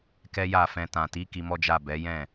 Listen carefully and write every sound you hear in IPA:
kɛ˦ja˦˨fɛ̃˧ tã˨ti˨˦ ki˧mɔ˦d͡ʒa˦˨ bɛ˨˦jɛ̃˦˨

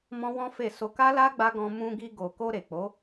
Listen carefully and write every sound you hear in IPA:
mɔ̃˦wɔ̃˦fe˦˨so˧ ka˦la˦ ɡ͡ba˦ɡɔ̃˧ mũ˧ɡi˧ɡo˨ko˧ ɾe˨k͡po˨˦

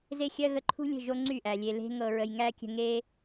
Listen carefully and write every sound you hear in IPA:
ze˦xʲɜ˦ ɣə˧ǃʰṳ˦lʲə̤˦˨ ʒo˦ ŋ͡ǀy˦˨ʔæ˨ lʲe˨le̤˧ŋɤ˨ɹə˨j ŋæ˦kʲə̤˧ŋe˦

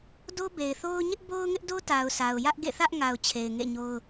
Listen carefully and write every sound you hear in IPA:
do˦be˨ɪ̯θo˦ʊ̯ ɲɪ˦ʔbo˦ʊ̯ŋɪ˦ʔdo˦ ta˨ʊ̯sa˨ʊ̯ jä˦ʔɡḛ˦˨θä˦ʔŋa˨ʊ̯ t͡ɕʰe˨ɪ̯ŋḛ˦˨ɲo˦ʊ̯

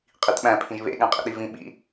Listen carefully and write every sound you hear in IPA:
qʼitɓæ̃ pʰĩʒβḛ ɠæ̃qʼḭɗivĩ ɓḭ

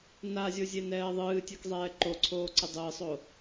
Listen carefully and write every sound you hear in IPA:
nazʲozʲenɛː ðˤɨːtʲɛkzˤɛː ǃoǀʰoːǀɨ dˤɨːsˤo

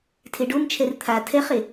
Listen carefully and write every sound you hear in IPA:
tʰeɖomt͡ʃʰɛr t̪ʰa tʰɛχe

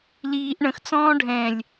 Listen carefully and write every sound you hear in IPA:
liːʔ ɳə̃xt͡sɔ̃ː ɖʱɛ̃lʲ

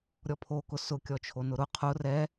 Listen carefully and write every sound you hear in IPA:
ɾʲɔpʰokʊ sʊkʲɔt͡ʃʰo nʊɾʊ qʰʊ rɛ

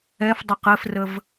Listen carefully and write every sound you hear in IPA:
ɛfdˤʌq ɘfrəv

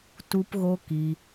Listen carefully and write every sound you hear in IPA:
tu˧pɣo˧ ki˧

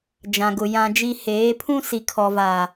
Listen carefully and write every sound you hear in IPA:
d͡ʒã˨ɡʊ˨ jã˦d͡ʒi˦ heː˨˦pʰũ˦si˨ kʰɔ˨va˨

